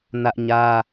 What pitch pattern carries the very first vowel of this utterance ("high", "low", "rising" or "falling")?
high